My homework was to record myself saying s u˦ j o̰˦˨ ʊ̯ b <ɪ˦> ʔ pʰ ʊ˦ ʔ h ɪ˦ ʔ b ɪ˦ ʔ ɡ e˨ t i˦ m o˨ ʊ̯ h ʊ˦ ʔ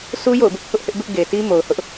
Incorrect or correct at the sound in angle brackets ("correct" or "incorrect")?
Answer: correct